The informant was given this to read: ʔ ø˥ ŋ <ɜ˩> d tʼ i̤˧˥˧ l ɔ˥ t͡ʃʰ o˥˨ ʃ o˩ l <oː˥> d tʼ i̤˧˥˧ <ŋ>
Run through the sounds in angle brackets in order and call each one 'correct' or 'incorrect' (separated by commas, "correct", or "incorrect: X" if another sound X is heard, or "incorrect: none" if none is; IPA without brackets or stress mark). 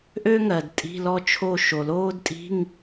correct, correct, correct